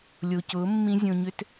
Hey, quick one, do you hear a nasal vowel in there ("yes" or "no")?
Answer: yes